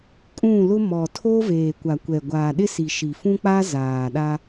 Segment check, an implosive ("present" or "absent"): present